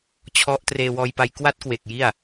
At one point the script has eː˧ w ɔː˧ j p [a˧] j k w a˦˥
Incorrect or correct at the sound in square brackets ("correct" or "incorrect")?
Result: correct